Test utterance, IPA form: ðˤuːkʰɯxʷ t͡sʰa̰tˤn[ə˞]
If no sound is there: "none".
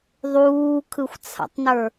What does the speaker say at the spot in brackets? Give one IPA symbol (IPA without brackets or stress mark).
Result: ə˞